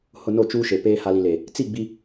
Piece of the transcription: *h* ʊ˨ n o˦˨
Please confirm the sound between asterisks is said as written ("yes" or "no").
yes